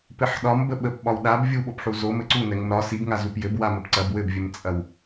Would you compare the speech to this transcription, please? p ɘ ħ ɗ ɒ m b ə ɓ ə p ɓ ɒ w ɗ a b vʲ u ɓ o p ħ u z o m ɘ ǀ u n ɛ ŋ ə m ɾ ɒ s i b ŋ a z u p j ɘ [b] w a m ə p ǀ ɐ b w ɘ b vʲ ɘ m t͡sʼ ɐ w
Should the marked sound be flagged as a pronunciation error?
no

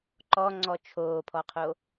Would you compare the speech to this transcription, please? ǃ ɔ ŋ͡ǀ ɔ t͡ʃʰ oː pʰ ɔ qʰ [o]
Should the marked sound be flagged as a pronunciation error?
no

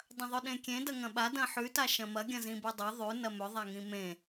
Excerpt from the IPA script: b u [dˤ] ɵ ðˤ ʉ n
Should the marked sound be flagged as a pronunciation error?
no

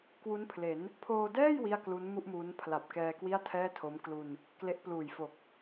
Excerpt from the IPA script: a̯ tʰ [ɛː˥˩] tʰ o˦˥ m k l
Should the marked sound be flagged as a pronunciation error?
no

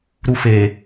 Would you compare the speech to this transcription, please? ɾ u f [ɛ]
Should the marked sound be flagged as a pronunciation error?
yes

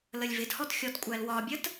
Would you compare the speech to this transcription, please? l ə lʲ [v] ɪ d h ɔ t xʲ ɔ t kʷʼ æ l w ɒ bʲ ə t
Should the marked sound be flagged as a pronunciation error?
no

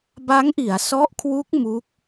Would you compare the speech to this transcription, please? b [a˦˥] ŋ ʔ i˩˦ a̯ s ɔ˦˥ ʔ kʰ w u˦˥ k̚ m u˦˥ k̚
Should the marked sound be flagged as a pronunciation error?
no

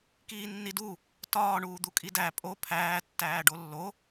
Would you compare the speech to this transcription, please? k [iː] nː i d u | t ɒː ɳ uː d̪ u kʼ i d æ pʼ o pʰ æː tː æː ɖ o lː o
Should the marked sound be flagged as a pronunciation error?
no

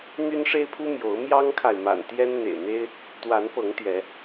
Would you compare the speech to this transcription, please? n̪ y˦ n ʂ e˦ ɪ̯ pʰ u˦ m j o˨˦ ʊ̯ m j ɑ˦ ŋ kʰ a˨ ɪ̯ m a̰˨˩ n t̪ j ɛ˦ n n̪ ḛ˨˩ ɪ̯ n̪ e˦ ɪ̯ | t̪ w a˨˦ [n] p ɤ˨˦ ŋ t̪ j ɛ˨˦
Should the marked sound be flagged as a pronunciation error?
no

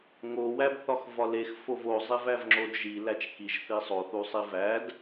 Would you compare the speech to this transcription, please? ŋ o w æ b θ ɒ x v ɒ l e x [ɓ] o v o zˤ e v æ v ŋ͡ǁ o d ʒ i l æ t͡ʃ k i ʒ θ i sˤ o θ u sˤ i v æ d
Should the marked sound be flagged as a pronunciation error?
yes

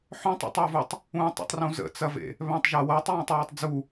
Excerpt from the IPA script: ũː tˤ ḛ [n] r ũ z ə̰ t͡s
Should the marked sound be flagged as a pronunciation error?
yes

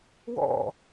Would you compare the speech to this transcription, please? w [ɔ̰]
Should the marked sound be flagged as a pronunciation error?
no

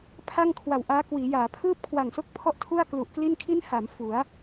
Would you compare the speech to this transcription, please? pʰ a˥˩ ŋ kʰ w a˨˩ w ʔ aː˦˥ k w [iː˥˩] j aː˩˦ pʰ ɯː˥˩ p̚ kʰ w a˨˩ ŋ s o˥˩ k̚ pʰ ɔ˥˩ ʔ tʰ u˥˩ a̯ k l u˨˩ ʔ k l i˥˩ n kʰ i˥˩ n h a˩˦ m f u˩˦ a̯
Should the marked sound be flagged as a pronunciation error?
yes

